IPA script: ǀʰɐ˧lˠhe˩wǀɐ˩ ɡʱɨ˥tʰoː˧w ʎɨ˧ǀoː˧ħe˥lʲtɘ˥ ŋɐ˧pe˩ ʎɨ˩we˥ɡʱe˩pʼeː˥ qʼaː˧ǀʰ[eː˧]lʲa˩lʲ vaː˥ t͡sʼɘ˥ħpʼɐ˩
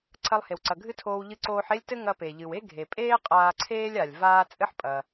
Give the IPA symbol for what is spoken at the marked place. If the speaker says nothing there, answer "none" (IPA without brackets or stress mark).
eː˥